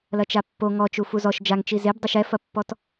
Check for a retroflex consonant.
absent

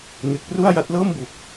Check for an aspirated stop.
absent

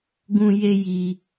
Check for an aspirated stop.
absent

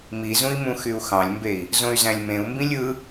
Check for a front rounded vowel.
present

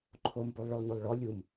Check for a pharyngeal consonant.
absent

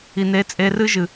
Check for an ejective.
present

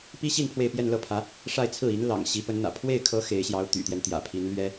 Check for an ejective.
absent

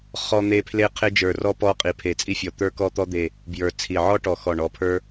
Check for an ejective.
present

